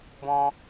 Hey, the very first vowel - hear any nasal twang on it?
yes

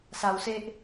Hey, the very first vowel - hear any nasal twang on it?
no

